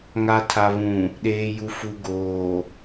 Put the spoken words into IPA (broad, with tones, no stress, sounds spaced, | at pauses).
ŋ a˨ tʰ a˨ β ũ˨ | ɗ eː˨ j u˨ f u˨ ɡ oː˨